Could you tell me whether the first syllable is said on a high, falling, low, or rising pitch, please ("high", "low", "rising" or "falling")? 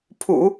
low